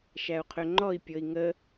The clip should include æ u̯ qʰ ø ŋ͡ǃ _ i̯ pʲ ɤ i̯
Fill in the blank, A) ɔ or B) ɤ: A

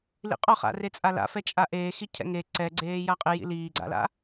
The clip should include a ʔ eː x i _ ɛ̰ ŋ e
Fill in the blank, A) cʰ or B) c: A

